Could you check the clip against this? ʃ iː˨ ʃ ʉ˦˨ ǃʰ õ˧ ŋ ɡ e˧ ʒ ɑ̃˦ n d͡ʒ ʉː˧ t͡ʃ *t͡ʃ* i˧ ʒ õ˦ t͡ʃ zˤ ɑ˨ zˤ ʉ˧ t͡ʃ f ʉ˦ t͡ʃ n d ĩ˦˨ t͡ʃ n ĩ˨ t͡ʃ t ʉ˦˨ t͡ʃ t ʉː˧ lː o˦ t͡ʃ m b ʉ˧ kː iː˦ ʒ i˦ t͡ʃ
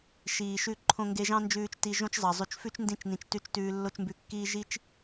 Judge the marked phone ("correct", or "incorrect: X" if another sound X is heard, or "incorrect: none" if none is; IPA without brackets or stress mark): incorrect: t